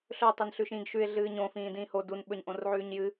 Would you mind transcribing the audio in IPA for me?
ɬɵ tˤenɬʉʃĩːɡʃʉɪ̯ ɮɨːɲõ fĩːdĩːho dun ɓɵɲʔõrʕʉːɲjɨ

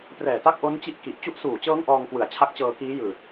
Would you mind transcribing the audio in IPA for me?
prɛː˨˩ta˦˥k̚ʔo˦˥n t͡ɕi˥˩ʔki˨˩ʔ t͡ɕu˦˥ʔsuː˨˩t͡ɕɤː˦˥ŋ ʔɔː˧ŋkwɯ˩˦a̯t͡ɕʰa˦˥k̚t͡ɕɤː˧ kiː˦˥jɯː˨˩t̚

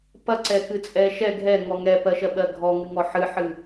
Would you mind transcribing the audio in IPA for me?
pɐǀɛkɨt͡sʼɛ ʃɛ ɡʱɛŋɔ ŋɛpɜʃɜɓɜ ɡʱɔŋɨŋɔ ħɨħɨ

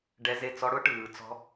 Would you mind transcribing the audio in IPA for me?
ɖɛ˦˥ze˥˧ t͡sɔ˦˥ɽʊ˦˥ʈɯː˨˦t͡sɔ̤˦˥

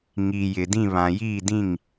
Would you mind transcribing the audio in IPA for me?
ŋiː˨jɪ˨dĩ˦˨βã˨ jiː˦˨ dĩ˦˨ŋ

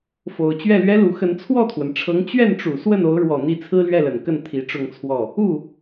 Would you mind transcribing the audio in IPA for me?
fo˨˩ʊ̯ t͡ɕɥɛ˥˩lɥɛ˥lu˧˥ xə˧˥n t͡sʰwɔ˥˩t̪ʰwə˩nʈ͡ʂʰɤ˧˥ŋ t͡ɕɥɛ˥˩nʈ͡ʂu˨˩ swə˥˩n o˧˥ʊ̯ɻwɔ˨˩ n̪i˥˩ t͡sʰɹ̩˥lɥɛ˥˩lə˨˩nkə˥˩n t̪ʰi˧˥ʈ͡ʂʊ˥˧ŋt͡sʰwɔ˥˩ | u˥˩

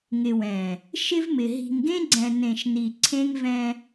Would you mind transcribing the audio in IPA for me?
ŋɪ˨wɛ̃˨ | ʃɪ˦vmɪ˨ ɦi̤˨ŋɡẽ˦ɡ͡ǀɛ̃˨ nẽ˨ʃni˨ ǀʰẽ˦ŋvɛ̃˦

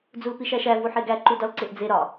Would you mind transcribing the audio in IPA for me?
d͡zulpiʃæʃæ vuħeɡæ ǃudɒlǀeʔd͡ze ɾɒ

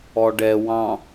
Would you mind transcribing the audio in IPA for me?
ɔɖɛ wɑ̃

